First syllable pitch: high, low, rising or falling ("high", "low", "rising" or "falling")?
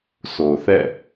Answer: low